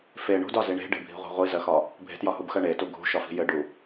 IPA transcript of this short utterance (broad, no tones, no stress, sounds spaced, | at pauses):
f e ɳ ṳ d ɒ z i ɳ e̤ ɖ e̤ bʱ i̤ ʁʷ i̤ ʁʷ i z ɜ x ɒ | bʱ e̤ t j ɒ h u b x ɜ ɳ e t u ɡʱ ṳ ʃ ɒ f i̤ j ɘ ɖ u